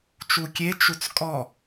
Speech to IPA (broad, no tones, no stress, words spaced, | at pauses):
t͡ʃukʲe t͡ʃut͡skʼɔ